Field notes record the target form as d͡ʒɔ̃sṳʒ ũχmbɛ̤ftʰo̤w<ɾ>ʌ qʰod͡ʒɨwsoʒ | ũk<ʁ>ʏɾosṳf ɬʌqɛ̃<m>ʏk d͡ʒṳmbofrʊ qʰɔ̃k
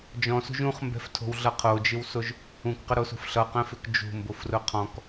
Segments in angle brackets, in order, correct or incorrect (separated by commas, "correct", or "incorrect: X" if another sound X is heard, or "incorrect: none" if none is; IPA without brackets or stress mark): incorrect: ɮ, incorrect: q, incorrect: f